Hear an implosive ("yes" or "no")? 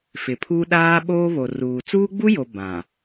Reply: yes